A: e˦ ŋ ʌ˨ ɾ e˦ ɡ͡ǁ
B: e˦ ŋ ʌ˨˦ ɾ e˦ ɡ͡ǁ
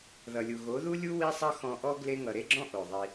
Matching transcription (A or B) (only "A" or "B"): A